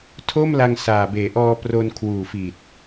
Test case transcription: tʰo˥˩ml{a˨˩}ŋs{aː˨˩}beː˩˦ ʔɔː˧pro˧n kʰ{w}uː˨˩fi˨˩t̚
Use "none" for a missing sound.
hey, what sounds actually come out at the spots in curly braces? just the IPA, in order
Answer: a˧, aː˨˩, w

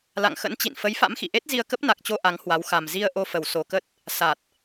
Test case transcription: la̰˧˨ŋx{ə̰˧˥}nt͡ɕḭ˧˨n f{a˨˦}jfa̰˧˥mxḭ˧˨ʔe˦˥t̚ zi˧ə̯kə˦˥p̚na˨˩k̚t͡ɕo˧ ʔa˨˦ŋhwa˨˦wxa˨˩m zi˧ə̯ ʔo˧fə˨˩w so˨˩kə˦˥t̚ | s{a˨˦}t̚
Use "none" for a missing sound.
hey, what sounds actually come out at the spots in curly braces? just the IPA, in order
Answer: ə̰˧˥, ə˨˦, a˨˩

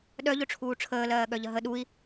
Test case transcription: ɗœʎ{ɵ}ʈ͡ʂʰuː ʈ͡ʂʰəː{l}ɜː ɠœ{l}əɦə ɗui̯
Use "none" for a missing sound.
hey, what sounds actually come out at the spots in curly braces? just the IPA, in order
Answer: ɵ, l, ʎ

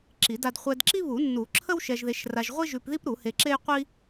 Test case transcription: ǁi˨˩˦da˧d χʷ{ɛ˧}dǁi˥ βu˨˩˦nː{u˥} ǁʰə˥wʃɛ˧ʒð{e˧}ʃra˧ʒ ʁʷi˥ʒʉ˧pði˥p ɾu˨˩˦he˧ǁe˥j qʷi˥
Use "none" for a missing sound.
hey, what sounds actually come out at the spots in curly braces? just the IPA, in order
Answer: ɛ˧, u˨˩˦, e˧

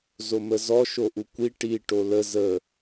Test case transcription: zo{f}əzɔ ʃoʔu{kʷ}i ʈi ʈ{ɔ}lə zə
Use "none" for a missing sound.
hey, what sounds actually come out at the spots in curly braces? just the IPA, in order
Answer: m, kʷ, o

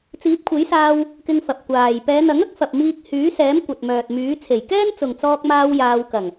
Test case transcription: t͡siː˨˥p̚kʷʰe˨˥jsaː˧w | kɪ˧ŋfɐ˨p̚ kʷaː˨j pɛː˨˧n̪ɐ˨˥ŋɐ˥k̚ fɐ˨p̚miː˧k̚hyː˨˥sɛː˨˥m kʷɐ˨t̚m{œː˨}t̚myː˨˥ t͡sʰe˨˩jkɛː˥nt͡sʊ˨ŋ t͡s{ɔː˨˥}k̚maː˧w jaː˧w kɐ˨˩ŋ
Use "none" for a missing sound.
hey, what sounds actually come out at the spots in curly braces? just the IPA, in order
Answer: œː˨, ɔː˧

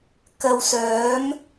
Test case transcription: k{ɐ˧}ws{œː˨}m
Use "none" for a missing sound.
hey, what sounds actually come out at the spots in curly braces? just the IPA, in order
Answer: ɐ˧, œː˨˥

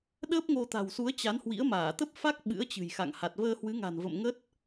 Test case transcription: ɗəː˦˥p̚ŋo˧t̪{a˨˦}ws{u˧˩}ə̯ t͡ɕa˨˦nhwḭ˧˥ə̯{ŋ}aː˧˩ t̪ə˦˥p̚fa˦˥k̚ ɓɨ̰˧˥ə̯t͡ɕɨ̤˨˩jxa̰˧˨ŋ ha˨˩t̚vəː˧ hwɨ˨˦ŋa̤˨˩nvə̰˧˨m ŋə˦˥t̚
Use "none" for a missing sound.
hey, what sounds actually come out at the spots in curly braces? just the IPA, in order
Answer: a̤˨˩, u˨˦, m

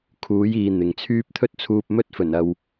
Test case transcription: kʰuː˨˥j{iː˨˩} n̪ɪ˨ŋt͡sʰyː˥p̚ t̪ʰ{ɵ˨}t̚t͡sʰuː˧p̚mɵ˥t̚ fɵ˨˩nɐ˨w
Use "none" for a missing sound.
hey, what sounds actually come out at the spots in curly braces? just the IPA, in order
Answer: iː˨, ɵ˥

